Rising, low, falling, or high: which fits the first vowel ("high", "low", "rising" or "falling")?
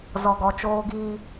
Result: low